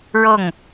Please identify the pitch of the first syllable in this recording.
falling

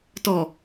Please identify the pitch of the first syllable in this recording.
low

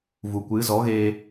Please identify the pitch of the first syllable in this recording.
low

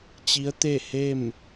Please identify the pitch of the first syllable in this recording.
rising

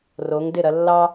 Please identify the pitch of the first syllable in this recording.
rising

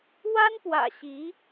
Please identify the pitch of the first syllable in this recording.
high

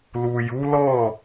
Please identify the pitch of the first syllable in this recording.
low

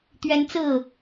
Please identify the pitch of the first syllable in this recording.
high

